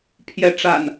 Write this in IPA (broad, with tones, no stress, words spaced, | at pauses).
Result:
pʰjɛ˨˦ ʈ͡ʂa̰˨˩n